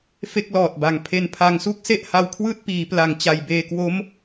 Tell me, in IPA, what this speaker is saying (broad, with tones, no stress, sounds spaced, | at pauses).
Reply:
f e˥˩ k̚ l ɔː˨˩ t̚ b a˩˦ ŋ pʰ e˧ n pʰ a˧ ŋ s u˥˩ k̚ s e˥˩ ʔ h a˧ w kʰ w ɯː˥˩ t̚ p iː˩˦ p l a˨˩ ŋ t͡ɕ a˨˩ j b eː˧ k w o˦˥ m